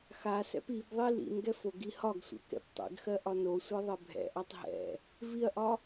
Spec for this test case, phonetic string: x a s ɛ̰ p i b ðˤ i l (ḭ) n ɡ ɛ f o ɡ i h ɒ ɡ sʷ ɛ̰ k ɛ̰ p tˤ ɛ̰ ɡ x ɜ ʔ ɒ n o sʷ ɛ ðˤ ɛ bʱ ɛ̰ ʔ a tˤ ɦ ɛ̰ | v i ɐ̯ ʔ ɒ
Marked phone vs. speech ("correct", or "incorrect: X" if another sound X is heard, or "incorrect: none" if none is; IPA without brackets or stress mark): correct